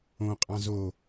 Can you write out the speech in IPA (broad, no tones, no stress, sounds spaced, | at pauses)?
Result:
õ qʼ ɑ̃ z o